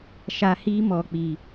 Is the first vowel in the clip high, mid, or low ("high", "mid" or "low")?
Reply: low